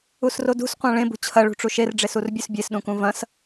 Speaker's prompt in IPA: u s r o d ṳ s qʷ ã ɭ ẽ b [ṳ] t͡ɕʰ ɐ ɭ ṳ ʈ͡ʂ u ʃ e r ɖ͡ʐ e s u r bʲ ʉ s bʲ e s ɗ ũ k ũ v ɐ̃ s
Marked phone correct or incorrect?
correct